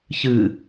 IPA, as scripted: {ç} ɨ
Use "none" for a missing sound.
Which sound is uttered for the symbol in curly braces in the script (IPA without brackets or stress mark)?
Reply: ç